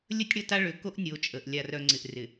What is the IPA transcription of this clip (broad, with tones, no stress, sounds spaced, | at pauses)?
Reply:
lʲ ə˦ tʲ ɽ ə˦˨ t a˦ ɭ ʏ˨ k o˦ ʔ nʲ o˨˦ t͡ʃʼ ə˨ ʔ lʲ a˨ r œ˨ ŋ͡ǀ ɪ˨ ʔ r ɪ˨